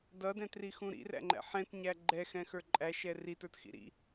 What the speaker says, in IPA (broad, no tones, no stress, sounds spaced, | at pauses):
d ʌ d ɛ̃ t r i x ũ ɾ ḭ r æ̰ ŋ͡ǃ æ̰ ħ ɛ̃ t ɲ æ ɡ͡ǃ ɛ x ɛ̃ x ə˞ ǃʼ æ ʃ ɛ r i t ə˞ t x ḭ ɾ ḭ